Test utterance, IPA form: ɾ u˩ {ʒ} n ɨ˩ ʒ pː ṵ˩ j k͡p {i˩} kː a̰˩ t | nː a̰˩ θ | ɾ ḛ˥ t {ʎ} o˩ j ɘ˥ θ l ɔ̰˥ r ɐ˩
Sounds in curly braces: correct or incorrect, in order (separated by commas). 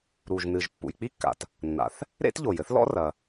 correct, incorrect, correct